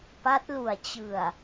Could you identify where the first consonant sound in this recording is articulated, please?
labial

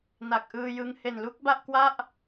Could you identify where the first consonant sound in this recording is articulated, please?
alveolar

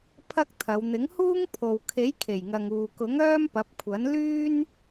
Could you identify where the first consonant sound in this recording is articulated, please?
labial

